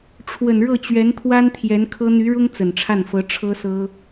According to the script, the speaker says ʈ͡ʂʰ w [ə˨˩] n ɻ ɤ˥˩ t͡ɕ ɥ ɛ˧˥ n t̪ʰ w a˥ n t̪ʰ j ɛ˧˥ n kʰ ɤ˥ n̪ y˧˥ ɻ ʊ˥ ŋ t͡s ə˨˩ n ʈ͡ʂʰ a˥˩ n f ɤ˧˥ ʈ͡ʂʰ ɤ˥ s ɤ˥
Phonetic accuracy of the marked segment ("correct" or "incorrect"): correct